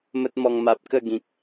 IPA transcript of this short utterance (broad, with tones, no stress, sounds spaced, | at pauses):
m ə˦ t̚ m ɔ˧ ŋ m a˨ p̚ k ə˥˧ ɡ ĩ˨ k̚